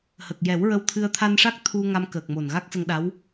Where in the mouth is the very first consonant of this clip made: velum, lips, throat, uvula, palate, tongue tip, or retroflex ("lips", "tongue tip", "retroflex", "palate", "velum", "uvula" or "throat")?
throat